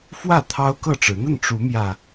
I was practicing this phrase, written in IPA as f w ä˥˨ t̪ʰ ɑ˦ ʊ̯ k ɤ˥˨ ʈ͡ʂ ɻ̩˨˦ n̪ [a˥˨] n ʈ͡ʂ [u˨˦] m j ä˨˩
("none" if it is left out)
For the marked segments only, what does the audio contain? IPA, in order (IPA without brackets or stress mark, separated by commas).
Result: ə˥˨, u˨˦